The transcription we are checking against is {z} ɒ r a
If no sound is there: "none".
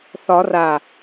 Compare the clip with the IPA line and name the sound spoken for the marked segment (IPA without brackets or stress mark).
θ